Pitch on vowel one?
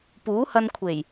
rising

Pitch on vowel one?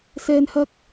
high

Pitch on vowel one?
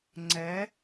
rising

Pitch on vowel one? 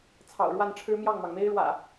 low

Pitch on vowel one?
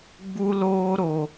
high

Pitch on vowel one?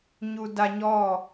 low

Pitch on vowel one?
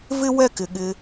high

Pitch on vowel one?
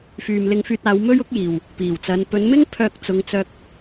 low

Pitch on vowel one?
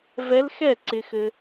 rising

